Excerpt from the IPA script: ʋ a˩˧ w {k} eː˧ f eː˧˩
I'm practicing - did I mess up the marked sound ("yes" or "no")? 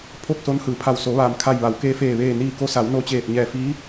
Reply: no